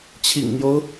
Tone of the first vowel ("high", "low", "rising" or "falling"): low